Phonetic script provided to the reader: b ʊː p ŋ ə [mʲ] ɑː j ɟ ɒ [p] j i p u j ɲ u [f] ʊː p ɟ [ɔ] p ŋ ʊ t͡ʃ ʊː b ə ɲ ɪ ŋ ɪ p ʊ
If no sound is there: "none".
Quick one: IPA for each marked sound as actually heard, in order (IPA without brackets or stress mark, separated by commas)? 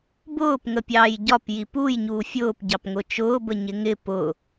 pʲ, p, fʲ, ɑ